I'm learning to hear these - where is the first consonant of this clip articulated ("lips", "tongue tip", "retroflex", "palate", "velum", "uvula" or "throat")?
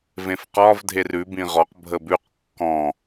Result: lips